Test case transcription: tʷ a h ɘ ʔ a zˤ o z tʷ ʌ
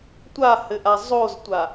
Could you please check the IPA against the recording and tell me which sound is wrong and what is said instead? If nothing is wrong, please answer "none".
ʌ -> a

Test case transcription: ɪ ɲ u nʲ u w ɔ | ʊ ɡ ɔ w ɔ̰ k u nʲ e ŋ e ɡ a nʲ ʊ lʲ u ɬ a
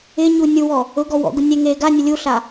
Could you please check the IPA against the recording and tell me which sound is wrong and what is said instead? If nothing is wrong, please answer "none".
k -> ɡ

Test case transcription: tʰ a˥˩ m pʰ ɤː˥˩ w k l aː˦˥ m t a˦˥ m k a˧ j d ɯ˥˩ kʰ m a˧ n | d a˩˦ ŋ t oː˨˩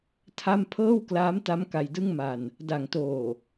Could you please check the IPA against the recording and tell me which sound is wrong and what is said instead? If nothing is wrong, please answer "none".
kʰ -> ŋ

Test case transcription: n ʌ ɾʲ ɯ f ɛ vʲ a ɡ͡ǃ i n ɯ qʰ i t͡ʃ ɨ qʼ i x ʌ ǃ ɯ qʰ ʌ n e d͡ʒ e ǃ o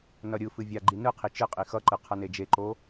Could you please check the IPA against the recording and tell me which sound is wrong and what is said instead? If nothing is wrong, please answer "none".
ɛ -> ɨ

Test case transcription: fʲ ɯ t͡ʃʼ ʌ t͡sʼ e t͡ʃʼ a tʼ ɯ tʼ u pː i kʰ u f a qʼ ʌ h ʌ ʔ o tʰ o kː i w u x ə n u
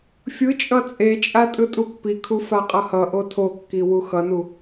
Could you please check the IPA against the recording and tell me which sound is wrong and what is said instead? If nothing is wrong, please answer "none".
ə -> ʌ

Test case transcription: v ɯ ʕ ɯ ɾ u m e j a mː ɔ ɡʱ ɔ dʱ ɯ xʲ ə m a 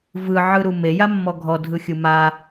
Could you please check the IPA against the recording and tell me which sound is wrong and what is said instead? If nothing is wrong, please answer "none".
ə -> ɯ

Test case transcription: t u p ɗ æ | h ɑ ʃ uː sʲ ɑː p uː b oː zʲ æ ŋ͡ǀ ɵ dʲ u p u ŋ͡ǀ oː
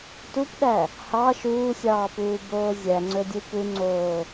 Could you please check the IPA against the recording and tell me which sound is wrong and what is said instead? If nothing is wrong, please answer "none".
none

